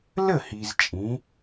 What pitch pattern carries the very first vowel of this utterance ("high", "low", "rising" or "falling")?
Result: falling